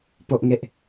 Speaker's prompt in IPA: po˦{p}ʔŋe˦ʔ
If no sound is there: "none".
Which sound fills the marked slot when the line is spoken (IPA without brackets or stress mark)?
none